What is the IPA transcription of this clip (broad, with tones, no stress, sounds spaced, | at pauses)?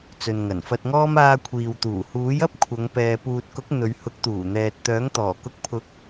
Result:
t͡s ɵ˨ n ŋ ɐ˨˩ n f ɐ˧ t̚ ŋ ɔː˥ m aː˧ kʷʰ iː˨ w t̪ uː˨˩ h uː˨˥ j ɐ˥ p̚ kʷʰ ɐ˨˧ ŋ p ɛː˨ p uː˨ t̚ k ʊ˨˥ k̚ n̪ ɵ˨˧ ɥ h ʊ˨˥ k̚ t̪ uː˨˩ n̪ ɛː˨ t̚ t̪ œː˨˥ ŋ t̪ ɔː˨˩ k ʊ˨˥ k̚ pʰ ʊ˨˥ k̚